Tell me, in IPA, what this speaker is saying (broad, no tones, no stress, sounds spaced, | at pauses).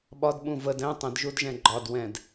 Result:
ɓ ɒ d ɓ ũ v ə d ɛ̃ tˤ ə̃ d ʒ u d ʒ ɛ̃ ɡ͡ǃ ɒ d w ɛ̃ d